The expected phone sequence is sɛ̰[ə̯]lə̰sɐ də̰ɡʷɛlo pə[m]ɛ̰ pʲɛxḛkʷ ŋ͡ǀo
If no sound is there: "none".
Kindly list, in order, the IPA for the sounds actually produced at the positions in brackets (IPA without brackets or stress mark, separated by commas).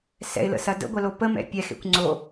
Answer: ɪ̯, m